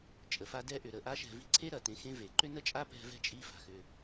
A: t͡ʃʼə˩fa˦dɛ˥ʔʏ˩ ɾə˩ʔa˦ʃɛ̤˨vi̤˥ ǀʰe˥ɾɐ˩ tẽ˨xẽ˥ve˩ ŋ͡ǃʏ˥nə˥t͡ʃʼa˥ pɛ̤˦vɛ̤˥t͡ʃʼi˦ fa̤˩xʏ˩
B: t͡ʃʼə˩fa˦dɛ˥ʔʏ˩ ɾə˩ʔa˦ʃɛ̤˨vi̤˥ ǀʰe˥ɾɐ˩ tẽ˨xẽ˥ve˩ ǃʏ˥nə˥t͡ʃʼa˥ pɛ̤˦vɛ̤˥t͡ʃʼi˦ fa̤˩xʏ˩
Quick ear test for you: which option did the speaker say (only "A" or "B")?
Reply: B